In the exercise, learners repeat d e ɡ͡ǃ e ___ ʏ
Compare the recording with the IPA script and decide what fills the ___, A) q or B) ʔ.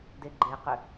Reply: A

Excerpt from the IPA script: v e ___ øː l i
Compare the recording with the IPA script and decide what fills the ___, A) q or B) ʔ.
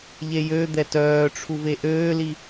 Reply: B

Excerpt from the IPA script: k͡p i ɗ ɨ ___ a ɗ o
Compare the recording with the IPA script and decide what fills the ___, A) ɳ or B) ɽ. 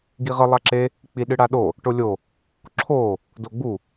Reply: B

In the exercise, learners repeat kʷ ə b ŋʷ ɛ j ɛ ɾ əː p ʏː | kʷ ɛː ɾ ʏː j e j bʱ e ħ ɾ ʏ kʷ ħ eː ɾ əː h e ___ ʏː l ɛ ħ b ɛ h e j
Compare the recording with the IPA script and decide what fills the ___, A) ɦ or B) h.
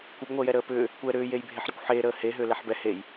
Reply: A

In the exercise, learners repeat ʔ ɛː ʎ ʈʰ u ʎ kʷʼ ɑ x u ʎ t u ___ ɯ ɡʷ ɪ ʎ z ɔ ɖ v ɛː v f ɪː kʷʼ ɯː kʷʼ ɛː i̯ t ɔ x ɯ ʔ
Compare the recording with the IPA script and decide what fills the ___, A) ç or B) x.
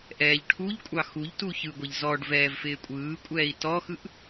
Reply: A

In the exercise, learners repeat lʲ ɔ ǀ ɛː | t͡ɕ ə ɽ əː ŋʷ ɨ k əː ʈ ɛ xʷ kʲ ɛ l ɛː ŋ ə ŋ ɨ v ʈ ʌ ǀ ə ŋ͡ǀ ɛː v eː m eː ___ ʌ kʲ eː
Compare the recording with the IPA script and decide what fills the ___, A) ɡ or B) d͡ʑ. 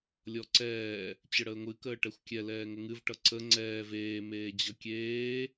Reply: B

